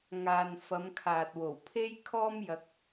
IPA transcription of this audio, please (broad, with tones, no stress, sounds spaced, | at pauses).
ŋ aː˨ n f ɐ˨˧ m kʰ aː˨ t̚ w o˨˩ w pʰ e˥ j kʰ ɔː˥ m j ɐ˧ k̚